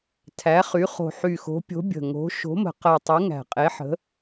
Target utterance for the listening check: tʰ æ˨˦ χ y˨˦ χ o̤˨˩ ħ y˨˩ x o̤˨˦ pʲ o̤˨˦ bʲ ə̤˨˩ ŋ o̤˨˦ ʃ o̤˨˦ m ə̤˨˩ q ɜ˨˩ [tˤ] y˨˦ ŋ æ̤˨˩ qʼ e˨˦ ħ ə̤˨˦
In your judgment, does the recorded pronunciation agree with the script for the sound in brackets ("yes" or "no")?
yes